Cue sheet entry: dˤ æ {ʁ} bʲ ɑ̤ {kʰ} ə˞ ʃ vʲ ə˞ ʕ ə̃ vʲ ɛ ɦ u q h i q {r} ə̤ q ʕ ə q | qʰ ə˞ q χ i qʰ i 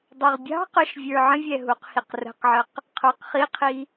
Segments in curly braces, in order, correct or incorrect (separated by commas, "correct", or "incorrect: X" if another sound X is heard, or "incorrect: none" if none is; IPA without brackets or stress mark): correct, incorrect: q, correct